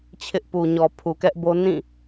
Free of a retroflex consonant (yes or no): yes